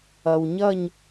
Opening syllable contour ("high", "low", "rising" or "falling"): low